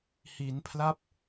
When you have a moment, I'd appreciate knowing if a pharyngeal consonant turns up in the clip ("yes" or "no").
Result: no